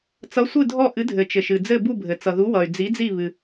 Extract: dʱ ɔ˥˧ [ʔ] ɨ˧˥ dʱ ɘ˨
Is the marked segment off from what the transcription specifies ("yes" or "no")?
no